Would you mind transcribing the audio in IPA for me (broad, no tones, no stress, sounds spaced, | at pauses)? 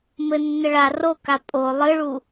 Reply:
m ɘ nː ɘ ɭ a r o k a pʼ o lˠ ɨ ɭ u